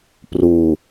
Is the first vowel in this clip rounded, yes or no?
yes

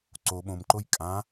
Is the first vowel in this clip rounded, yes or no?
yes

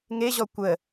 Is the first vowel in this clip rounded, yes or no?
no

